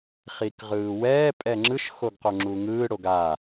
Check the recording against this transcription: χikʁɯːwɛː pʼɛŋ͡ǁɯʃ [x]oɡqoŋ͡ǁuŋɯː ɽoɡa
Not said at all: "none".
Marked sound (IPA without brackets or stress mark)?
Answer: x